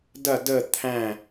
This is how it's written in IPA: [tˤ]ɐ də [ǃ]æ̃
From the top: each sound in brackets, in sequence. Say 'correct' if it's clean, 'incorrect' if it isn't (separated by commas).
incorrect, incorrect